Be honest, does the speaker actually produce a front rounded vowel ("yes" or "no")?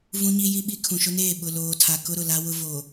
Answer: no